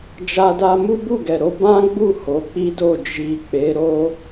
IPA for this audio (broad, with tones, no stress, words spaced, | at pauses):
d͡ʒa˧da˧ mu˦bu˦˨ɡɛ˨ɾo˧ bã˦ɡ͡bu˦˨ ho˨˦k͡pi˦do˦˨ d͡ʒi˨ k͡pe˨˦ɾo˦